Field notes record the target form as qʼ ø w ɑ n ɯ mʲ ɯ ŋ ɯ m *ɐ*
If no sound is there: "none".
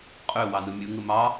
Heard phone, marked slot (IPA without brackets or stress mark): ɑ